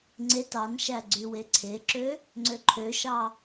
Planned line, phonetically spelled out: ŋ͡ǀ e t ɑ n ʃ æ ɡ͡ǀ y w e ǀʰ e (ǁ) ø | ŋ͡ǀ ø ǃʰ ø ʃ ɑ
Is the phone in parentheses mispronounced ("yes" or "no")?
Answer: no